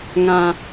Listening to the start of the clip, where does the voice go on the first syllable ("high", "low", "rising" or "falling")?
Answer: low